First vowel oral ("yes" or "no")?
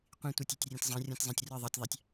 no